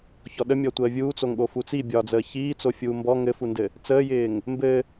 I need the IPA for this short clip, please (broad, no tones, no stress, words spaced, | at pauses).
çɔɗəmʲɔtʷəː vʲuːt͡soŋɠo fut͡sibʲɒːd͡zəː çiː t͡sofʲuːmbɔ ŋɘfundɘ | t͡səːjɪːŋ | mbɘ